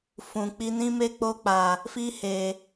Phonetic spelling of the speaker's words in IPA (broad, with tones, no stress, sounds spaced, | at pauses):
f ũ˨ k͡p i˧ n ĩ˦ m e˦ k͡p o˧ k͡p a˨ | f i˧ h e˨